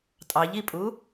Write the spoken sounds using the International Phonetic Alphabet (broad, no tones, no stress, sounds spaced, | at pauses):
tʼ ɑ ʎ i pʼ u